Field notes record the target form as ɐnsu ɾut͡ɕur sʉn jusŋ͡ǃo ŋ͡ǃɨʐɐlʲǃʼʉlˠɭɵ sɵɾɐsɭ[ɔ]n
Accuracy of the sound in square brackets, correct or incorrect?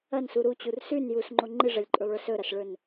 incorrect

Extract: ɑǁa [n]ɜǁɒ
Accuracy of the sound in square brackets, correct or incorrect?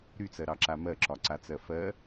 incorrect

